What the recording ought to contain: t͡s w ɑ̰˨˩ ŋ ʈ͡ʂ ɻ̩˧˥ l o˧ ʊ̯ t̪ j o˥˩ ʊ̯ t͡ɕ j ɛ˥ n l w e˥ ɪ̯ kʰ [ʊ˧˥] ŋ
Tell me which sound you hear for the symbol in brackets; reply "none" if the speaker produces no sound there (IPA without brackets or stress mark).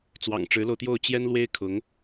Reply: ʊ˧˥